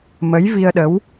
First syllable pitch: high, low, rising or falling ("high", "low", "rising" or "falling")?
rising